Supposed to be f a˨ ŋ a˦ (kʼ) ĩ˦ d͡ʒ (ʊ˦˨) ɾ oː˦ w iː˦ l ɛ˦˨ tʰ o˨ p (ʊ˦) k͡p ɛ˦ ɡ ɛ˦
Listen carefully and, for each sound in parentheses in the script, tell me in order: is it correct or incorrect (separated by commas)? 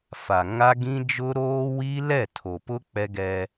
incorrect, incorrect, correct